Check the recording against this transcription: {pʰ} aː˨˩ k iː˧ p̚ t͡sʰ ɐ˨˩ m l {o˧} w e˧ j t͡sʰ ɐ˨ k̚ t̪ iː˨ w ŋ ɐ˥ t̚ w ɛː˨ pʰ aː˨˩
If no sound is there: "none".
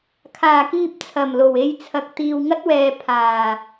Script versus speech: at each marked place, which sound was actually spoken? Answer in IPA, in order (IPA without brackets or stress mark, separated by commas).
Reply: kʰ, o˨˩